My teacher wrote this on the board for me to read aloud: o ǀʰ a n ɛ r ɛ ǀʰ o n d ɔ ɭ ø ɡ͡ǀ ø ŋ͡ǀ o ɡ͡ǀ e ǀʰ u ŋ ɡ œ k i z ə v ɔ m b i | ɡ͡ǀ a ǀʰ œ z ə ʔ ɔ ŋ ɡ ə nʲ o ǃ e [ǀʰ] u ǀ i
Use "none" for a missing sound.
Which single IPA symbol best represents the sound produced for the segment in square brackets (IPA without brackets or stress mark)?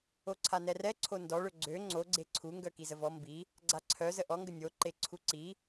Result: ǀʰ